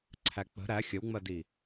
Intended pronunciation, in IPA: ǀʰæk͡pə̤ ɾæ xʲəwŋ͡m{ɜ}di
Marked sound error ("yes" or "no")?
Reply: no